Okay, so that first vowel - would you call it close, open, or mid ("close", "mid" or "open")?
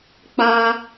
open